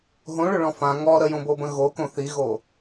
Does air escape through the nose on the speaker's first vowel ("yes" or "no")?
yes